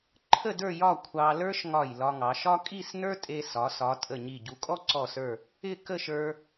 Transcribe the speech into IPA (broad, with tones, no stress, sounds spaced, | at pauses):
ǃʰ ə˥˧ d ə˞˥˧ j ɒ˥˧ kʷʰ ɑ˧ l ə˞˥ ʃ ŋ ɒ˧˩ j l ɒ˧ ŋ ɑ˩˧ ʃ ɒ˥ kʼ i˥˧ s n ə˞˥ tʼ e˧ s ɒ˩˧ s ɒ˩˧ tʼ ə˧˩ ɲ i˧˩ ɟ u˩˧ kʼ ɔ˥ ǀ ɔ˧˩ s ə˞˧˩ | ɪ˥˧ k ə˥˧ ʃ ə˞˧